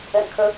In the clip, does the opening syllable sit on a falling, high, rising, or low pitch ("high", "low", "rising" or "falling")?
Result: low